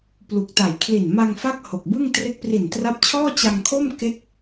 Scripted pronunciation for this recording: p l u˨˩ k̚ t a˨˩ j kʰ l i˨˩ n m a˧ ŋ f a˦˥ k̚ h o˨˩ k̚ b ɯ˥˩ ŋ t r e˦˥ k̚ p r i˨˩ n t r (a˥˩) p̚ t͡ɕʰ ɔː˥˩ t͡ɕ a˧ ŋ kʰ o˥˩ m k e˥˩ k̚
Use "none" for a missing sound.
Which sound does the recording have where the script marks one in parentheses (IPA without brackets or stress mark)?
a˦˥